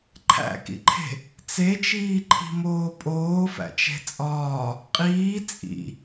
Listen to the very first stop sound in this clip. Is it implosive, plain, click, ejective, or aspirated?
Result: click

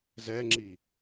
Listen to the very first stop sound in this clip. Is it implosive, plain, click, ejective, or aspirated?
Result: click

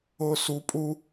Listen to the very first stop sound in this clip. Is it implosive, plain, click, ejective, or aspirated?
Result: ejective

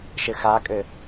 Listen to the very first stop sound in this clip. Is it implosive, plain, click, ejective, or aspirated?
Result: ejective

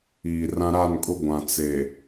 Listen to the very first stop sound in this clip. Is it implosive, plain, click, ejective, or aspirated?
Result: ejective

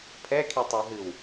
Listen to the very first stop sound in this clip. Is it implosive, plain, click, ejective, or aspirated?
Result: aspirated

